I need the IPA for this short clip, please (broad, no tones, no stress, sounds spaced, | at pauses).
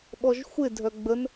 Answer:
ɓ ɔ ʒ xʷ ɪ dʱ œ ɡ͡b ə n